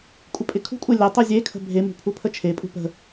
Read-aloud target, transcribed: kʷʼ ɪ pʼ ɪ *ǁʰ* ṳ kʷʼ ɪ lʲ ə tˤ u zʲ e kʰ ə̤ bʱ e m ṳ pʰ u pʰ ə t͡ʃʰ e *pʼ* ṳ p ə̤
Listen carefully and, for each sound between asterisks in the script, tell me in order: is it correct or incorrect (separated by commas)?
incorrect, correct